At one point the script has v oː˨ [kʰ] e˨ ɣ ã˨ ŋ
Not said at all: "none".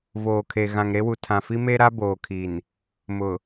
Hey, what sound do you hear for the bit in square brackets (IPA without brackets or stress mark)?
kʰ